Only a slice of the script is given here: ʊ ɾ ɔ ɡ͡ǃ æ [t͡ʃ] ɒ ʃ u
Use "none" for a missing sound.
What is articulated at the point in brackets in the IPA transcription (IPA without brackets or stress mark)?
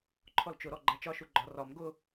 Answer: t͡ʃ